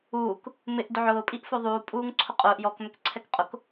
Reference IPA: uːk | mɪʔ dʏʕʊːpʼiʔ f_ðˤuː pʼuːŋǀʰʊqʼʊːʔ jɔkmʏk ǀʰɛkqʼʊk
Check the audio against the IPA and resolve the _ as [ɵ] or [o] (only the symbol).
o